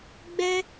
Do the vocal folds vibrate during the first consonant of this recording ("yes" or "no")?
yes